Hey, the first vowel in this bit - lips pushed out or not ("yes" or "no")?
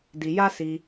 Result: no